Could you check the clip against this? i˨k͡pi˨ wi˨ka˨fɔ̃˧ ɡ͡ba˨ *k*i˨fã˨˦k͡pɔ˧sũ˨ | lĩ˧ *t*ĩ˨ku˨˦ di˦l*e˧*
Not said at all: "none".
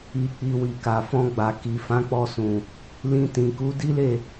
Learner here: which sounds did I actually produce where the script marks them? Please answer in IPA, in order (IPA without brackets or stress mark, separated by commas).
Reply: k, t, e˦˨